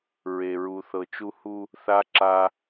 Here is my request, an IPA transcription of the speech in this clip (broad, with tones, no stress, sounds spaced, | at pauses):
ɹ e˨ ɹ u˨ θ ɤ˨ t͡ʃ u˦ h u˦ | θ a˦ ǁ a˦